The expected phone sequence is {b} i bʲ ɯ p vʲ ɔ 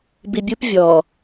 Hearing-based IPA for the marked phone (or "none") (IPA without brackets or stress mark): b